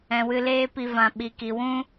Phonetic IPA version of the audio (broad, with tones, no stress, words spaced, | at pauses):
ɛ̃˨wɨ˧leː˦pi˧ vã˨ɓi˨ki˨wũ˦